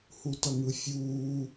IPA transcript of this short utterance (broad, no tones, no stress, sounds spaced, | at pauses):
h u t ʌ ŋ ɯ fʲ uː